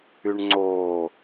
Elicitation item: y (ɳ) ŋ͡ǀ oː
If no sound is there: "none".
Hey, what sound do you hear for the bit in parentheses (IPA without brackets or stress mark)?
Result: ɳ